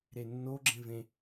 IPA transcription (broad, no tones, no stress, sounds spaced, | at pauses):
ɾ e nː o ɡ͡ǁ ẽ v ẽ